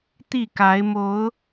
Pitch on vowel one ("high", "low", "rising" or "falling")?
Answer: falling